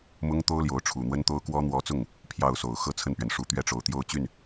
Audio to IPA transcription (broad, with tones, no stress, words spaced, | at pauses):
mʊ˥ŋt̪o˥ʊ̯ljo˧˥ʊ̯ ʈ͡ʂʰu˨˩ n̪wə˥nt̪o˥ʊ̯kwɔ˥ n̪wɔ˧˥t͡sʊ˥˩ŋ | pʰjɑ˥˩ʊ̯so˨˩ʊ̯ xɤ˥t͡sʰə˥˩npɥɛ˩n ʂu˧˥t̪ɥɛ˥˩ʈ͡ʂo˨˩ʊ̯ t̪jo˥˧ʊ̯t͡ɕy˥˩n